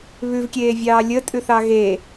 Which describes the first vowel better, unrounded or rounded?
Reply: rounded